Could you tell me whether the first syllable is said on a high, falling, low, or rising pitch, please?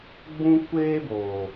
high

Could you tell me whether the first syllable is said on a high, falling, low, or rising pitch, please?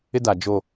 high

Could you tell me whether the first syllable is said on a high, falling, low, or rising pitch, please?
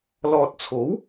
low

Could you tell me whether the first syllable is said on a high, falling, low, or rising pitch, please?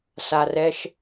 low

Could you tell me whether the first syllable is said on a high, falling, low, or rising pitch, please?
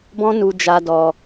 high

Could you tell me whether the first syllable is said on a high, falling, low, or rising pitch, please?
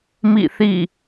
falling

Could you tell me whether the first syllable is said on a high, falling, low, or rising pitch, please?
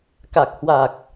low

